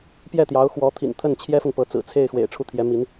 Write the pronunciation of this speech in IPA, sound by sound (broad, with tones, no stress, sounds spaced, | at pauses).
p j ɛ˥˩ t̪ j ɑ˧˥ ʊ̯ x w ɔ˧˥ t̪ʰ ḭ˨˩ n t̪ʰ ə˥˩ n t͡ɕʰ j ɛ˥ f ʊ˨ ŋ p ɤ˧˥ t͡s ɹ̩˨˩ t͡sʰ e˥˩ ɪ̯ x w ḛ˨˩ ɪ̯ ʈ͡ʂʰ u˥˩ t̪ʰ j ɛ˧˥ m i˧˥ n